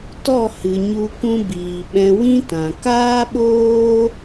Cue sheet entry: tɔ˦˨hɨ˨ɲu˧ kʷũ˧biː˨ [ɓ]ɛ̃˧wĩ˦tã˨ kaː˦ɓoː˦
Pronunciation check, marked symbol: correct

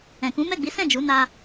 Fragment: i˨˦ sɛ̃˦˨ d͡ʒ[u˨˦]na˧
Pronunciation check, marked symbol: correct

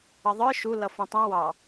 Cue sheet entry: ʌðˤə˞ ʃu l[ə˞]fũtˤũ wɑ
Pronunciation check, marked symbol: incorrect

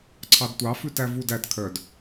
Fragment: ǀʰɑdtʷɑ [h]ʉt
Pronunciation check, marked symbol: incorrect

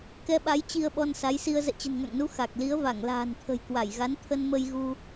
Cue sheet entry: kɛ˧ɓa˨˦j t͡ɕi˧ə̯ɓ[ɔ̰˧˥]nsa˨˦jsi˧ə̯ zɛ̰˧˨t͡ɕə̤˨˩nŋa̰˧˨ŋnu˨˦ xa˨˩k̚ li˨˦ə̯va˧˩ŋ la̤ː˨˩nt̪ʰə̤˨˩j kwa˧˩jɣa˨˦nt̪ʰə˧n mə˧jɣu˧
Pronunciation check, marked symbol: incorrect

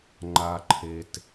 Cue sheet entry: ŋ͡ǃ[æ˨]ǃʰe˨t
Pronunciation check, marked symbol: incorrect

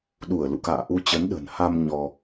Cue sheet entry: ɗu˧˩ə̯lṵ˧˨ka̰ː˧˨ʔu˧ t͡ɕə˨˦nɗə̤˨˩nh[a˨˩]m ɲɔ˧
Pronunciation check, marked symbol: incorrect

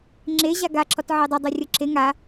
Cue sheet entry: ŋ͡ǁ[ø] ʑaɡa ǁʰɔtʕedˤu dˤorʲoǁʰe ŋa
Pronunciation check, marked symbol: incorrect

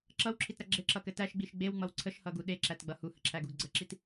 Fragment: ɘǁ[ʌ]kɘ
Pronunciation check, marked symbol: correct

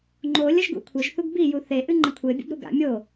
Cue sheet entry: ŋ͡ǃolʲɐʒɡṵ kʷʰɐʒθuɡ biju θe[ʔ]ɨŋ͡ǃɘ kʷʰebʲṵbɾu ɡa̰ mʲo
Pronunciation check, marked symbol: correct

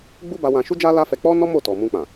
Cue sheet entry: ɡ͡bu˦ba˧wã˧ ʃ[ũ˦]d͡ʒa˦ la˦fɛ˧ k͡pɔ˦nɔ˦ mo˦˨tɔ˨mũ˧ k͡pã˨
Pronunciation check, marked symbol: incorrect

